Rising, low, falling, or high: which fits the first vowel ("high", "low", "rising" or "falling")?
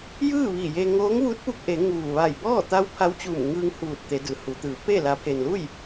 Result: falling